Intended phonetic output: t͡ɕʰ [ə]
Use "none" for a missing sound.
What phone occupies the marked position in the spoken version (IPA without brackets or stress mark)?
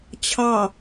ɑ